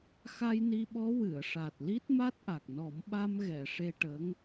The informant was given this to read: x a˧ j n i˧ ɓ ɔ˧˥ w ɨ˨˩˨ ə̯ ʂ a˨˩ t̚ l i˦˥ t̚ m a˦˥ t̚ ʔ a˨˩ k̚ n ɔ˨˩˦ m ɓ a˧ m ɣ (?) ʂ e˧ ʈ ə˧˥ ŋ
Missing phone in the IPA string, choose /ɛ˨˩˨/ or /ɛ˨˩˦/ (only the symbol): ɛ˨˩˨